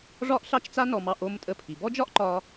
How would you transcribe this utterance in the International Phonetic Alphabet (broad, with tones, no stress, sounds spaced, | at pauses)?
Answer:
ʐ ɒ˥ ʔ ɬ ɑ˥ t͡ʃ t͡s a˥ n ɔ˧ m ɑ˧ ʔ o˧ m tʼ ə˧ pʰ i˩ b ɔ˥ d͡ʒ ɒ˥ ʔ ǃ ɒ˧